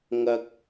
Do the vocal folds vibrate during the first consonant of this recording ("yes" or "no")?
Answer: yes